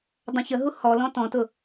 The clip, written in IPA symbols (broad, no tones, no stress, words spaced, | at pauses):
dˤɛ̃çəɦu hɔlɔ̃ tɔ̃tʊ